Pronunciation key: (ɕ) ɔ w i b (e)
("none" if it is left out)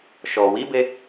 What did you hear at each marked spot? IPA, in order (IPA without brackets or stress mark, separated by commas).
ʃ, e